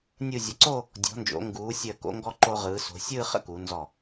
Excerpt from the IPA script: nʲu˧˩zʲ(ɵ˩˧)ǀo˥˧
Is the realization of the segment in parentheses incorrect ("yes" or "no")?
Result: yes